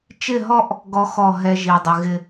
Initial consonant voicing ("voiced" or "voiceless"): voiceless